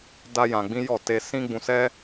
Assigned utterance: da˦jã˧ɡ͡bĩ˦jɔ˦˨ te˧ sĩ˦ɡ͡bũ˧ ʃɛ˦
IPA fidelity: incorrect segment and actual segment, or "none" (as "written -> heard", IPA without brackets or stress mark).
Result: ʃ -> s